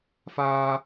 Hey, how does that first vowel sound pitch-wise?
high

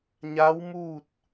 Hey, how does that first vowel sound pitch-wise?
rising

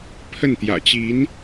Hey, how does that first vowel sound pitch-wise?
falling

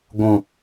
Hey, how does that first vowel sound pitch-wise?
low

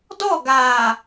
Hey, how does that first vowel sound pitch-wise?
falling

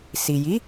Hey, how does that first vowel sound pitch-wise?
low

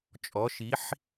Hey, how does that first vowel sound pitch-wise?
rising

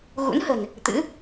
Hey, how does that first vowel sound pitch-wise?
rising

